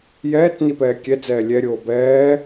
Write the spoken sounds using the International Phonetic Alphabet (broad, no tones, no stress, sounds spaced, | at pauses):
j ɛː t͡s n i p ɛː kʲ ɛ d͡z ɛː lʲ ɛ ɾʲ oː b ɛː